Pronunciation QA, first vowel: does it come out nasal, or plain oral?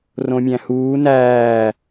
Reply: nasal